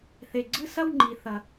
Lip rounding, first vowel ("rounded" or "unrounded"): unrounded